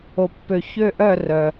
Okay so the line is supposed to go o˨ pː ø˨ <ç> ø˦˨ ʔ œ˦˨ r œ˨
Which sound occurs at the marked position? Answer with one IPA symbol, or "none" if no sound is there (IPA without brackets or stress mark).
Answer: ç